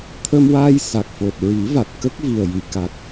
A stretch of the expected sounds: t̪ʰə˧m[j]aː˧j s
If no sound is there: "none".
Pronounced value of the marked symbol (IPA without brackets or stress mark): w